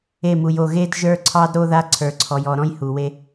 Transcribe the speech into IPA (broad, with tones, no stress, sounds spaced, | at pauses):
e˦˨ m u˨ j o˦˨ ɣ e˦ d ʒ ə˞˦ ǀʰ ɑ˦ d ɾ o˦ ð a˦ ǀʰ ə˞˨ ǀʰ ɔ˨ j ɔ˨ ɾ ɔ̃˦ j h u˨ w e˦